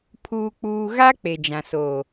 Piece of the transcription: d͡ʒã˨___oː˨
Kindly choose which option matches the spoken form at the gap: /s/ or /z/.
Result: s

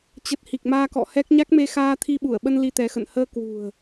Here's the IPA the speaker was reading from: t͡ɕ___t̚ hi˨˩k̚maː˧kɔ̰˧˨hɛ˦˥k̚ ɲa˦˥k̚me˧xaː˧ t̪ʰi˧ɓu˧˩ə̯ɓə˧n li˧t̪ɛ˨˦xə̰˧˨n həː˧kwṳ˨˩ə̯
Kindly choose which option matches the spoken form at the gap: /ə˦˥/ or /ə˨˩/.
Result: ə˨˩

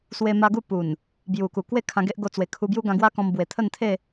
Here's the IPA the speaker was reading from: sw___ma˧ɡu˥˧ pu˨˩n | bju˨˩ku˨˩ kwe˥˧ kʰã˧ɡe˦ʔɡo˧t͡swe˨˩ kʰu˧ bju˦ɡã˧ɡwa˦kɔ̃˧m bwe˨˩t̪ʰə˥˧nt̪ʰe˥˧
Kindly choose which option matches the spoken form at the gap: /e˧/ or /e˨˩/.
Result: e˧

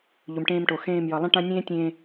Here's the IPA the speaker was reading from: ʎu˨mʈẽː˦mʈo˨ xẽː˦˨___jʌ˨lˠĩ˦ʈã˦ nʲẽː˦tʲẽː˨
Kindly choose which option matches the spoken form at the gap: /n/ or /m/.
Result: m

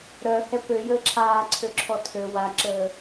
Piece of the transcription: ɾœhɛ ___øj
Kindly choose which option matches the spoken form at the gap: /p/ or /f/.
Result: p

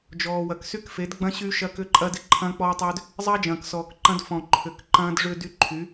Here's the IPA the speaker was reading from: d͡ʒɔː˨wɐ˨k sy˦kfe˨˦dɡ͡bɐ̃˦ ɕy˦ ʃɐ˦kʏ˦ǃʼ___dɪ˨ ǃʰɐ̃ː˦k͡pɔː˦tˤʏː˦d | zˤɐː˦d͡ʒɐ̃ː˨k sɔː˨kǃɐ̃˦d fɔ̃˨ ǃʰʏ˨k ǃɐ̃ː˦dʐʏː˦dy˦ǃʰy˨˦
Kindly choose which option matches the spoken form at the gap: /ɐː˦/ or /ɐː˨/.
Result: ɐː˦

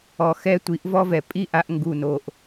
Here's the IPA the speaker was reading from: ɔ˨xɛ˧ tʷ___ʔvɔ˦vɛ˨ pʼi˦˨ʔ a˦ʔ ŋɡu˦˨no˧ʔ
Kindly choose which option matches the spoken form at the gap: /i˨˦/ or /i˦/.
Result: i˨˦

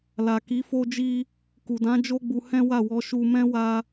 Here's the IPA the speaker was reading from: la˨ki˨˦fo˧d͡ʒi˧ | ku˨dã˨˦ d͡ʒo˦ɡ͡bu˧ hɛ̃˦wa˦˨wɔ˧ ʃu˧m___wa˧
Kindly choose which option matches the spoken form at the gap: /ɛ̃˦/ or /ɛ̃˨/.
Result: ɛ̃˦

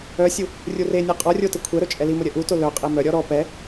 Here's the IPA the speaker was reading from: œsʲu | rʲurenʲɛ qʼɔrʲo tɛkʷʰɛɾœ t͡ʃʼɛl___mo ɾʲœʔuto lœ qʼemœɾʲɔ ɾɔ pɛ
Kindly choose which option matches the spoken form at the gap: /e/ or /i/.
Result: i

